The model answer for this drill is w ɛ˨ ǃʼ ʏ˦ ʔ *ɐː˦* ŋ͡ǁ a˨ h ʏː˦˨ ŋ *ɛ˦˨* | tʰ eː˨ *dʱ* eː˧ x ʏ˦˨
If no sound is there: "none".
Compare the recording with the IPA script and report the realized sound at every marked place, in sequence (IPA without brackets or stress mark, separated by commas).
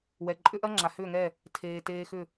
ɐ˦, ɛ˦˨, t